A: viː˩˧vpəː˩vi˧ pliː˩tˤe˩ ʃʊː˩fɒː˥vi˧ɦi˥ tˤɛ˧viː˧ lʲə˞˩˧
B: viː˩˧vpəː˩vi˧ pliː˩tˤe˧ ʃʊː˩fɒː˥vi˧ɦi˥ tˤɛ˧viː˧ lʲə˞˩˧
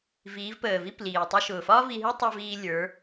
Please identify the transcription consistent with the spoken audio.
B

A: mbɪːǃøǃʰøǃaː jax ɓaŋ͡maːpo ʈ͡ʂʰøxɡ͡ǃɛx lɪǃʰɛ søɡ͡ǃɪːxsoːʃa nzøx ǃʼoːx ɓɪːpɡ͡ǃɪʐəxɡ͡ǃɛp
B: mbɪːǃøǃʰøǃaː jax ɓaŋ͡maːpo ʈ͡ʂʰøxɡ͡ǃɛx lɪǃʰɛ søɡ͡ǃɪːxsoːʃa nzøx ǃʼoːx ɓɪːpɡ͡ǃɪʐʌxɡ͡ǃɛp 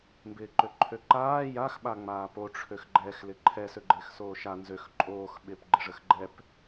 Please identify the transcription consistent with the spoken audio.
A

